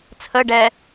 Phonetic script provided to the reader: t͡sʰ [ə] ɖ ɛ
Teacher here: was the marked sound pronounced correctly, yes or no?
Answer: yes